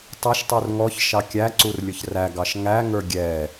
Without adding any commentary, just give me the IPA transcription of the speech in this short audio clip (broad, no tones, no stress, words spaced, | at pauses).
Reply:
tˤʌʃtˤur ŋɔçʃɑ kʲæǀur lʲʊçræɡɑʃ ŋæŋə˞ ɡʲɛ